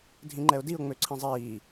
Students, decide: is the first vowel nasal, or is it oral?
nasal